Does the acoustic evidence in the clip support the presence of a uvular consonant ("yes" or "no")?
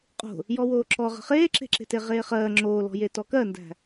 yes